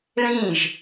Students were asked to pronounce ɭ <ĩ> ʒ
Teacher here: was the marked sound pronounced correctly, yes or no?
yes